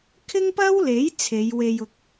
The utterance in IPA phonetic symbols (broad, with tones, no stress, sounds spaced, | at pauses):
kʰ ɪ˥ ŋ p ɐ˥ w l e˨˥ j t͡sʰ e˨˧ j w e˧ j ʊ˧ k̚